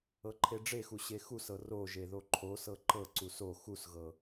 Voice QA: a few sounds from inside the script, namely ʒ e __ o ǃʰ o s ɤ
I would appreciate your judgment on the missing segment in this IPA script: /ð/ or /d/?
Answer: ð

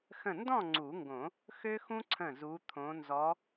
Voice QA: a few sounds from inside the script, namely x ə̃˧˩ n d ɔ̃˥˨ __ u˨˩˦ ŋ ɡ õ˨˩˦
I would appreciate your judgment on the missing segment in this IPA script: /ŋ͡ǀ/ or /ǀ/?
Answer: ŋ͡ǀ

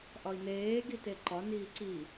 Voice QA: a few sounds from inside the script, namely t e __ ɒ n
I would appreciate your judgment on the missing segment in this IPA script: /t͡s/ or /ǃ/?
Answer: ǃ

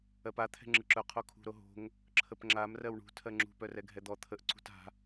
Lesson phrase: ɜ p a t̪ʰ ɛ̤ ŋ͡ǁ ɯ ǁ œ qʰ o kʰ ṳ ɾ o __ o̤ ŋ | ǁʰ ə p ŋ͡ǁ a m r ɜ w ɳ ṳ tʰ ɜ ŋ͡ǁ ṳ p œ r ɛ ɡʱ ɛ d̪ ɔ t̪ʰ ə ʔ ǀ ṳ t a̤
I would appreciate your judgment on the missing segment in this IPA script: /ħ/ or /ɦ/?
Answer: ɦ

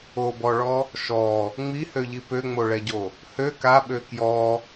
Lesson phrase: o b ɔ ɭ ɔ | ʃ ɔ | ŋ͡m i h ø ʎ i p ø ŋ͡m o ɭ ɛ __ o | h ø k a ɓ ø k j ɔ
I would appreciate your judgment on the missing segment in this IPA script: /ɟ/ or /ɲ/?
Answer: ɟ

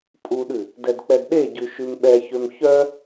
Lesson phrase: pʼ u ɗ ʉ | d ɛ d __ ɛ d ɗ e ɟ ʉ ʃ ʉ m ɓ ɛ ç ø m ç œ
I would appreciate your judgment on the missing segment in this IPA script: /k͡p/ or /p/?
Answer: k͡p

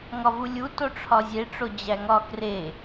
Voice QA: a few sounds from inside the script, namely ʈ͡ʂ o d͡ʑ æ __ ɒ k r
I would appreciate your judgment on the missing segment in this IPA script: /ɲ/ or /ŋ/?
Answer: ŋ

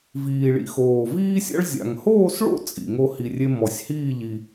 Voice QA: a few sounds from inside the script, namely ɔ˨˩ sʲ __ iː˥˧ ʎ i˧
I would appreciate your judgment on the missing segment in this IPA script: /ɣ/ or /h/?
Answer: h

